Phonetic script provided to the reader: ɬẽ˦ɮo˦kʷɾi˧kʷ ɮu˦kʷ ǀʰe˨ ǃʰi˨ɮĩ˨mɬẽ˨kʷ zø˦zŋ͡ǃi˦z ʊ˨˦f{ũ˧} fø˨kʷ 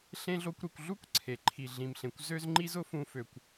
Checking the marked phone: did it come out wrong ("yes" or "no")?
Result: no